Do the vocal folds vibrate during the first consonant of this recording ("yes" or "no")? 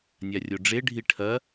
yes